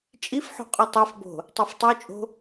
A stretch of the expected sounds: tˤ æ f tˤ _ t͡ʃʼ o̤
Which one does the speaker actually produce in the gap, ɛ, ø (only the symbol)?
ø